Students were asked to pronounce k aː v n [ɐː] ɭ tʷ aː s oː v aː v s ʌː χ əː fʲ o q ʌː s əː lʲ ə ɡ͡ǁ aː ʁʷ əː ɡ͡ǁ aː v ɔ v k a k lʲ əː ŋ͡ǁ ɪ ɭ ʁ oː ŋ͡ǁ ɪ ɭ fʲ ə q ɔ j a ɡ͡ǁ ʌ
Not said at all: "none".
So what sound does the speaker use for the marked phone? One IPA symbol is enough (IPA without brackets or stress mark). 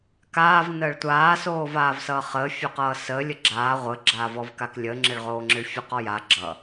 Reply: əː